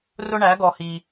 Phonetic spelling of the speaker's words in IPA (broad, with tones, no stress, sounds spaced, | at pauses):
r ʊ˦ ɳ æ˨˦ ɡ ɔ˨ h i˨